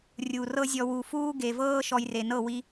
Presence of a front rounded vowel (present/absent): absent